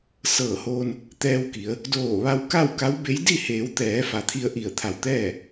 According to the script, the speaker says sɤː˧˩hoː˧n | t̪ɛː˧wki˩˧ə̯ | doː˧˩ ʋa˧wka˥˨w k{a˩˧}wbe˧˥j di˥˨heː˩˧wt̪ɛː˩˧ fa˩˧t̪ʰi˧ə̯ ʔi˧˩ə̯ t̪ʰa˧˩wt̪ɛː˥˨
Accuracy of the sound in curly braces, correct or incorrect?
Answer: incorrect